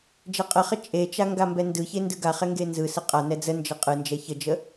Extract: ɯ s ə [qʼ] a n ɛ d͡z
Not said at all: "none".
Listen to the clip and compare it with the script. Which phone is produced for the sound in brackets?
qʼ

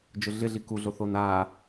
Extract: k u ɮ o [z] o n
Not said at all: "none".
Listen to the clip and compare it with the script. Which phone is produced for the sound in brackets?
θ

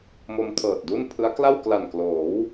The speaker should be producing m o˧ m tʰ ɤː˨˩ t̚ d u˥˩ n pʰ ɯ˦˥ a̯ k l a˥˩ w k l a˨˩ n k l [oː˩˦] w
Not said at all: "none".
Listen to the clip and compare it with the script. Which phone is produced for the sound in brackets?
oː˩˦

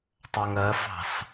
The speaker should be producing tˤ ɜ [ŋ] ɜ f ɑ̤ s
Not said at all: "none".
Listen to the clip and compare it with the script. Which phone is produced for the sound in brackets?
ŋ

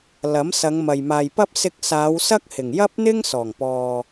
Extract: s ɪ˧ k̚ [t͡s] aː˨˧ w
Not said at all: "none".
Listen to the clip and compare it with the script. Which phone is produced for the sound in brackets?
s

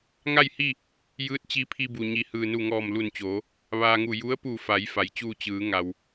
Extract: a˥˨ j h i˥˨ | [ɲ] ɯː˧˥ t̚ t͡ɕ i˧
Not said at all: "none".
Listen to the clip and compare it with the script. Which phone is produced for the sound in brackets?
j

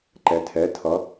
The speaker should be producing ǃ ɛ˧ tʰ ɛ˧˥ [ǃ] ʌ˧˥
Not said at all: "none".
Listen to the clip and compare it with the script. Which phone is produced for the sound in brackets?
tʰ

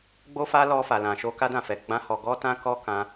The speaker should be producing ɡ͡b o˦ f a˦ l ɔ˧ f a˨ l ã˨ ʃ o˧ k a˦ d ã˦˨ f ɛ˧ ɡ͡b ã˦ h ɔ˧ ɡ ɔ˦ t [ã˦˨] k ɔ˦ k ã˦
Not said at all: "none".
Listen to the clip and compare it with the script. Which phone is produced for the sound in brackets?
ã˦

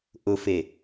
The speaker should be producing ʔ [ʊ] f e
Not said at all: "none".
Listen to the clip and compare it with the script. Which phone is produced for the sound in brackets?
ʊ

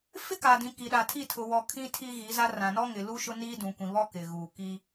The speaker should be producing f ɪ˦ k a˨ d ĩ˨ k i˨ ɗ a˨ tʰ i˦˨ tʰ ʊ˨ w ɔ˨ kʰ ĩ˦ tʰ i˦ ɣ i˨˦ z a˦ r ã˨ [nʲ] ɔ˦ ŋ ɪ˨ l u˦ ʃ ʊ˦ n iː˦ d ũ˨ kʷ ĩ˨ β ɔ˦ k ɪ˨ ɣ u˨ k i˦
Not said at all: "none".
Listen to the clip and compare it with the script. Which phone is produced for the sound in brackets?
n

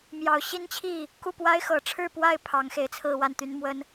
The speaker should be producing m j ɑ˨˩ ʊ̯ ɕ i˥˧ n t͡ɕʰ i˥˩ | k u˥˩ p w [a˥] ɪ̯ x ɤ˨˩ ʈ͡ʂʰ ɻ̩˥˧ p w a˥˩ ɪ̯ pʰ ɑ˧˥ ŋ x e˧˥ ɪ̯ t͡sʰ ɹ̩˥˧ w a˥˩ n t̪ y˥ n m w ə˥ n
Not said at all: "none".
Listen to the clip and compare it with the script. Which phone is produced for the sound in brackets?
a˥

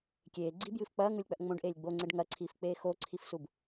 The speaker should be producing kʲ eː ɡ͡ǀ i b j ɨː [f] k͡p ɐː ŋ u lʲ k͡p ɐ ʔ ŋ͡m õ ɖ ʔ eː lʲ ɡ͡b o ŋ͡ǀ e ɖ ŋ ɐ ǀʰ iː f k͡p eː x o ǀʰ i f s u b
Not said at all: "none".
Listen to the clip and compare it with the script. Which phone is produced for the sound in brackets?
f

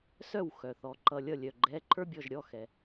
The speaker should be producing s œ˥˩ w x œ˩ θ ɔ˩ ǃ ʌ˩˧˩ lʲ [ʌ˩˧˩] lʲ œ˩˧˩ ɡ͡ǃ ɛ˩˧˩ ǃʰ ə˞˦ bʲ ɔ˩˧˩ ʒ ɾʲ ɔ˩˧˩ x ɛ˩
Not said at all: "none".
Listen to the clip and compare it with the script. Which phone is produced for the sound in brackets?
ʌ˥˩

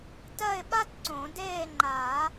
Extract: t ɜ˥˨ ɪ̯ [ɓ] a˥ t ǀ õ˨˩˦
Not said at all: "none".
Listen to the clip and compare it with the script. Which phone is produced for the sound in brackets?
ɓ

